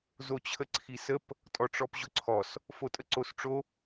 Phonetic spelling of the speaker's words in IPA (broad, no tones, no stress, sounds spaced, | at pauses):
z o t͡ɕʰ ə ǀʰ i s ə p | tʼ ɔ ʈ͡ʂ ɔ p ʑ ʊ ǀʰ ɔ s | f o tʼ ə ǀ o s ʈ͡ʂ o